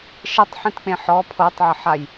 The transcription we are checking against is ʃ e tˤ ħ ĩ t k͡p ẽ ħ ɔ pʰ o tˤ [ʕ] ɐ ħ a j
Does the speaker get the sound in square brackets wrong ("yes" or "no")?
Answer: no